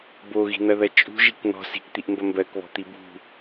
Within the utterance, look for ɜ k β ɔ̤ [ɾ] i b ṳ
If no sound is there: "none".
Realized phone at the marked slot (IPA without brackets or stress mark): t̪